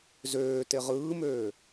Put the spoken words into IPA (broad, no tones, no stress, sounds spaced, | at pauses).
z øː t e ʁ ɯː m øː